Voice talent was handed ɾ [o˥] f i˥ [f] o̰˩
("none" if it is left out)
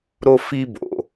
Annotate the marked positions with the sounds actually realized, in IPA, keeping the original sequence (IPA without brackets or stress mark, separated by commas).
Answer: o˥, b